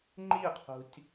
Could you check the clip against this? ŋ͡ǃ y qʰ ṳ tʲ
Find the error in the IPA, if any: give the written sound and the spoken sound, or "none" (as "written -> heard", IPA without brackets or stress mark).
y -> i